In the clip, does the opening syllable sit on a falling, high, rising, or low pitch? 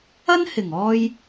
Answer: high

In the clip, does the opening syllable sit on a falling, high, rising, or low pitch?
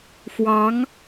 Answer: rising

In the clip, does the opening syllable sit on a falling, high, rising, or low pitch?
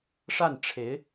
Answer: falling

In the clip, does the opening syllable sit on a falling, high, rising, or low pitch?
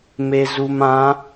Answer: low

